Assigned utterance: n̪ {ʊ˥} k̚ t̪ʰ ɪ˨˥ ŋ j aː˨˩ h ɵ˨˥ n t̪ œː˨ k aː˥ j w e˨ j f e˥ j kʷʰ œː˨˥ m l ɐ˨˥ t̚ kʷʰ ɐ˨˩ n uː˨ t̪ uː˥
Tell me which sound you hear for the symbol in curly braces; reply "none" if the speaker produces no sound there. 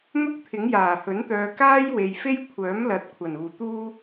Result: ʊ˥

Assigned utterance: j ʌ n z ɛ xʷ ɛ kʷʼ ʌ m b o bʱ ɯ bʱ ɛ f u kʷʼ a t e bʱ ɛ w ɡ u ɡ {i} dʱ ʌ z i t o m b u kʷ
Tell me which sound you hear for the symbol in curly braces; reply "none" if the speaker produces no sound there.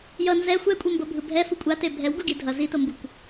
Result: i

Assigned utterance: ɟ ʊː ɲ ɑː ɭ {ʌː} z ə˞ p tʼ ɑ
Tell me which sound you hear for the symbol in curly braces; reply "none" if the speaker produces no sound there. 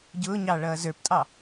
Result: ʌː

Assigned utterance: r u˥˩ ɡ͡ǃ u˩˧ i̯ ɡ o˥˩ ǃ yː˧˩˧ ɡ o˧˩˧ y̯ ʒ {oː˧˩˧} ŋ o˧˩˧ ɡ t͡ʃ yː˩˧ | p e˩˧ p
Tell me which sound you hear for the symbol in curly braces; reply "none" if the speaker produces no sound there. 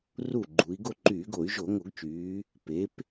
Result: o˧˩˧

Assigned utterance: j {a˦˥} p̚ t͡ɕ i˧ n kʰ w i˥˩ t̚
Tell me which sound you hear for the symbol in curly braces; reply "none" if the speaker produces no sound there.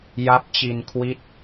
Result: a˦˥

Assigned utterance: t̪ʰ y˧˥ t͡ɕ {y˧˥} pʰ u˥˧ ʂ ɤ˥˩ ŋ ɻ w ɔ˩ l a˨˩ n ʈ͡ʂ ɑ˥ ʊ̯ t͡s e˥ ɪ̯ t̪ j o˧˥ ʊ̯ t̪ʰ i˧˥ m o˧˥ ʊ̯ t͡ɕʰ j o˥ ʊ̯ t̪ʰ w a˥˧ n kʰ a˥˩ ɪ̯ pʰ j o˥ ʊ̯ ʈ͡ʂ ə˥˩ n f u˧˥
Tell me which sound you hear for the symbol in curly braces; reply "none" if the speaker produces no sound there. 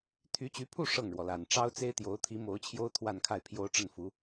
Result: y˧˥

